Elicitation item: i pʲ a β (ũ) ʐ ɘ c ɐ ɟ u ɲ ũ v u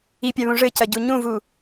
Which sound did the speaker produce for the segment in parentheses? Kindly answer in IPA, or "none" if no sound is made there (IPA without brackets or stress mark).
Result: ũ